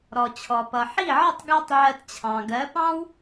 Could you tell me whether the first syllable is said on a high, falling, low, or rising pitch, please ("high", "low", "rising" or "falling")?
low